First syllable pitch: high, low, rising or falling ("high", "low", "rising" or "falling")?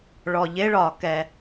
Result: low